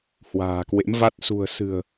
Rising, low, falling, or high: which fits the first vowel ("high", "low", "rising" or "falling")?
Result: low